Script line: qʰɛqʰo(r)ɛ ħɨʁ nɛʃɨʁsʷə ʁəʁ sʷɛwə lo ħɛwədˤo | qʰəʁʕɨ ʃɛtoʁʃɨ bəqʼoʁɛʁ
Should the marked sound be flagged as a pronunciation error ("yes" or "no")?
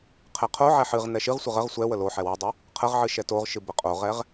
yes